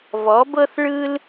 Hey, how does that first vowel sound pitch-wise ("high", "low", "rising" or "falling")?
rising